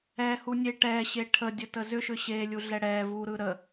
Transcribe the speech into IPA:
ɛ h u nʲ e ʈ ɛ ɕ e ʈʰ ə dʲ ə t ə z ʏ ʃ ʏ ɕ e lʲ u ɮ ɛ ɽ ɛ v u ɾ ɯ ɾ ə

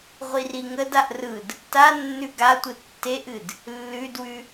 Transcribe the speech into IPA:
ʁʷ i r i ŋ ə d a ʔ r ɯ d | t a nː ʉ ɡ a tʷ ɯ tː e ʔ ɨ d | lː ʉ d w ʉ

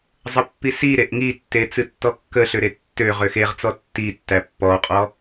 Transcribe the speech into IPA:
zˤ ə pː i s i ɾ e ʔ ŋ i tː e t͡s ɨ tː ɔ kː ə ɬ ø ɾ e tː ø ʁ ø x e ʁ t͡s ɔ tː i tː æ pː ɔ qʼ ɔ

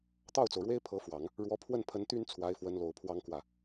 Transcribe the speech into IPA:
t̪ ɑ˥˩ ʊ̯ t͡s o˩ ʊ̯ ɻ w e˥ ɪ̯ pʰ ɤ˧˥ f w ɑ˨˩˦ ŋ | ɻ w ɔ˧˥ pʰ w ə˥˩ n pʰ ə˧˥ n t̪ y˥ n t͡sʰ w a˧˥ ɪ̯ f w ə˧˥ n l o˨˩ ʊ̯ pʰ w ɑ˥ ŋ k w ä˥˩

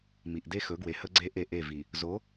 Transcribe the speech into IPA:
m i˨ ʔ d e˦ x ɵ˨˦ ɡ w e˨ h ə˦ ɡ͡ǀ e˦ ʔ e˦˨ ʔ e˦˨ v i˨ | z o˨˦

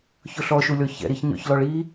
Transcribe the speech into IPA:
ç ɵ ɬ ɔ ʃ u lʲ ɔ ç ɛ̰ ɾ i ç ɲ ɔ̰ ç l ɔ ɭ i

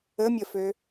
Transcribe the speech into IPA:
ə mʲ ə f ø

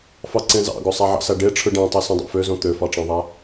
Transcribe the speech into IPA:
f ɑ ǀ ẽ z ɑ̰ ɡ o sˤ æ ʕ ɑ̰ s æ ɖ e ʈ͡ʂʰ ɯ ɖ æ̃ tˤ i s ũ dˤ ḛ f ø z õ t̪ ø f ɑ ʈ͡ʂ ɑ̃ ðˤ æ

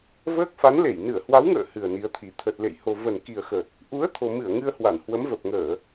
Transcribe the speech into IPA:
v əː˦˥ k̚ f a˨˦ n l e˧˩ j n ɨ˧˩ ə̯ h w a˨˦ w ŋ ə̰ː˧˨ h ɨ˨˩ ə̯ n i˨˦ ə̯ t̪ʰ i˨˩ t̪ʰ ə˨˩ t̚ l ḛ˧˨ j h o˨˩ v ə˨˩ n k i˨˩ ə̯ x ə˨˩ t̚ | ʔ u˨˦ ə̯ t̪ʰ o˨˩ m ɨ˧˩ ə̯ ŋ ɨ˧ ə̯ h w a˧˩ n h w ə˨˦ m v ə˨˩ p̚ ŋ əː˧˩˨

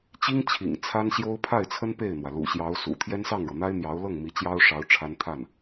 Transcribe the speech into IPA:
t͡ɕ i˥ ŋ t͡ɕʰ ḭ˨˩ ŋ t͡sʰ a˥ n ɕ j o˥ ʊ̯ pʰ a˥˩ ɪ̯ t͡sʰ ə˥ n p e˥˩ ɪ̯ n̪ w ä˩ l ṵ˨˩ ɕ j ɑ˧˥ ʊ̯ s ṵ˨˩ t̪ʰ j ɛ˥ n s ɑ˥˩ ŋ ɻ ɤ˩ n̪ a˥ ɪ̯ n̪ j ɑ˧˥ ʊ̯ l ɤ˥˩ ŋ m i˧˥ t͡ɕ j ɑ˥ ʊ̯ ʂ ɑ˧˥ ʊ̯ ʈ͡ʂʰ a˥ n t̪ʰ a˥˩ n

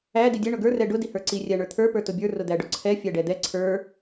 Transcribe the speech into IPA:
æ d i dʲ ɛ ɳ ʊ ɡ ə˞ r ɛ ɖ ʊ d i h ə˞ ǀ i rʲ æ ɳ ə˞ t̪ʰ ə˞ p ə˞ t ʊ bʲ ə˞ r ʊ d̪ æ ɖ ʊ ǀʰ ɛ fʲ æ ɖ ɛ d̪ ɛ ǀʰ ə˞

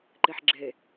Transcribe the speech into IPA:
ǃ e ħ ɡ͡ǁ e

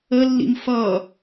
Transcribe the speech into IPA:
ə lː ḭ m f ʌ

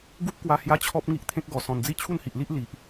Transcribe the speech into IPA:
ɡ u˦ p̚ k w a˧ h j a˦ t͡ɕʰ ɔ˦ p̚ ŋ i˦ ʔ t̪ʰ ẽ˦ k̚ ɡ ɔ˨˩ s ɔ̃˨˩ n d͡z i˥˧ t͡ɕʰ u˥˧ n h i˨ ʔ l i˦ ʔ l i˨ ʔ

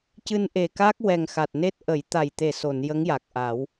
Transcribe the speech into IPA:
c ɨ˧ n ʔ e˨˩ k aː˦˥ k̚ w ɛ˨˩ ŋ x a˨˩ t̚ n e˦˥ t̚ ʔ ə˨˩˦ j t̪ a˨˩ j t̪ e˨˩ s o˨˩˨ n j ə˧˥ ŋ j a˨˩ k̚ ʔ aː˨˩˦ w

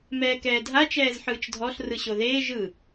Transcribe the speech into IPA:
m ɛː k ɛː dʱ a t͡ʃ ɛː z ħ ɯː t͡ʃ dʱ ɔ ɬ r ɯ ɕ o ð eː ʒ ɯ

